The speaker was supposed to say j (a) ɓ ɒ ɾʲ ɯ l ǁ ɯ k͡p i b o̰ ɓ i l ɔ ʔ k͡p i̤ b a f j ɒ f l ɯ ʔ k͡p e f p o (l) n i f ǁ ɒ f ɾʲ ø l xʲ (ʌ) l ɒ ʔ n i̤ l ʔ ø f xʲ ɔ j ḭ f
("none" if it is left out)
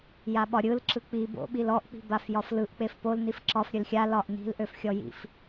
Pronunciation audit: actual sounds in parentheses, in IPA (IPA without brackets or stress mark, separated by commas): a, l, a